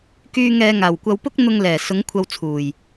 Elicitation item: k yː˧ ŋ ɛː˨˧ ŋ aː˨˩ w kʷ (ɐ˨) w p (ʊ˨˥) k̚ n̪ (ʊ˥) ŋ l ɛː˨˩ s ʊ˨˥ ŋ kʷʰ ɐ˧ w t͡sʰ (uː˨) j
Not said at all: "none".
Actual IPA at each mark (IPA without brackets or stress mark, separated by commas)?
ɐ˨˧, ʊ˥, ʊ˧, uː˨˩